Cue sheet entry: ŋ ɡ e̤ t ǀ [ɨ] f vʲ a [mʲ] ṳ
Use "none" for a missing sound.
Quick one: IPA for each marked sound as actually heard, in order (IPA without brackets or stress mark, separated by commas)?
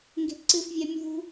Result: ɨ, mʲ